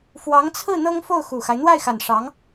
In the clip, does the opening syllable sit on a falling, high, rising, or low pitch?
rising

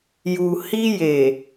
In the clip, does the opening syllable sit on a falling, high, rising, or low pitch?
low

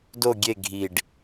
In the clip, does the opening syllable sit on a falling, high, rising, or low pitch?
falling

